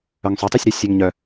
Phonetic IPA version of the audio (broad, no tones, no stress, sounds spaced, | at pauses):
œ ŋ sˤ ø tˤ y sʲ ɾ ø sʲ ø ŋ ɲ œ